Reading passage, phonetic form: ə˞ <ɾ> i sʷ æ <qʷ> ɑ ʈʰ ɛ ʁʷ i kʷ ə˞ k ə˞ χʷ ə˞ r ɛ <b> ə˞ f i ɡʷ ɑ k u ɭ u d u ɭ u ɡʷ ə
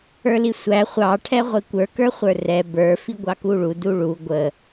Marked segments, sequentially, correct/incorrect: incorrect, incorrect, correct

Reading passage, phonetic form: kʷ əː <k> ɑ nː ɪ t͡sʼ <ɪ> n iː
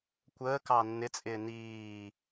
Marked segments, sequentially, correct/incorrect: correct, incorrect

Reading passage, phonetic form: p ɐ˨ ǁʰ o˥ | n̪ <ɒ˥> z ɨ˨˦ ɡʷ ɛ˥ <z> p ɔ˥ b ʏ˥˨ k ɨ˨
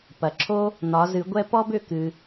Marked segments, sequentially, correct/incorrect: incorrect, incorrect

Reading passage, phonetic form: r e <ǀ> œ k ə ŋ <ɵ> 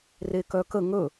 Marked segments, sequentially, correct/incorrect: incorrect, correct

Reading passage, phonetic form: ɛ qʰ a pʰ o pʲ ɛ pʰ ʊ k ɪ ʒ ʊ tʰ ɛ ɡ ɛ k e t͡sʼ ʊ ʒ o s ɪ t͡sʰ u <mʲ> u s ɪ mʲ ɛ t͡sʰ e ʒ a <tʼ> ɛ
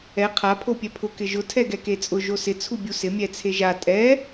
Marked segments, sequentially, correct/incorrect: incorrect, correct

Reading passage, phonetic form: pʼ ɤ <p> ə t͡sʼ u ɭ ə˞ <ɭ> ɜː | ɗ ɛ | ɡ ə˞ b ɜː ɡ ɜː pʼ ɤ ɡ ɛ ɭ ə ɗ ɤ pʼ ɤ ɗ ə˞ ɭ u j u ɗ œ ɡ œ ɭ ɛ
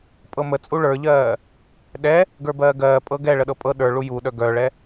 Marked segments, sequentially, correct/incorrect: incorrect, incorrect

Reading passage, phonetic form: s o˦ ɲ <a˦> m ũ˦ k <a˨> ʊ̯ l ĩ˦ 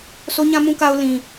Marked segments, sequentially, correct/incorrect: incorrect, incorrect

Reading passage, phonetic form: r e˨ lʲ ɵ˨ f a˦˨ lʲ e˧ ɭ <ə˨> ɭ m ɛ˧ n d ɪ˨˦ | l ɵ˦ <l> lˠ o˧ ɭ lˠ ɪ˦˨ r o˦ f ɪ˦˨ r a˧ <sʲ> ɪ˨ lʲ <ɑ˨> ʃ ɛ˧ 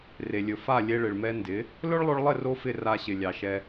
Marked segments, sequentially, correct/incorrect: incorrect, incorrect, incorrect, correct

